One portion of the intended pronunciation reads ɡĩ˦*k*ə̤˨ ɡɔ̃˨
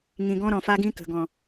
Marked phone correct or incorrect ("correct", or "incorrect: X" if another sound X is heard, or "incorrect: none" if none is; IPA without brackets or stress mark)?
correct